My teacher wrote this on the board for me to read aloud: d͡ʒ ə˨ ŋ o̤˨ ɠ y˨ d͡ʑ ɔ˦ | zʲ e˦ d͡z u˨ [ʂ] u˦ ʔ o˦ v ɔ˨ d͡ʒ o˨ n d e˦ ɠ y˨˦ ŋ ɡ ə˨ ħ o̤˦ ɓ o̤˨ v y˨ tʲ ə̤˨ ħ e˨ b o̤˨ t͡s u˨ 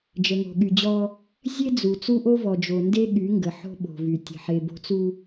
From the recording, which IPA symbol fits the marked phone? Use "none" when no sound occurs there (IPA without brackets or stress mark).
t͡s